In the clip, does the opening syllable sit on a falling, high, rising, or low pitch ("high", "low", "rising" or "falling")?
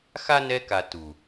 high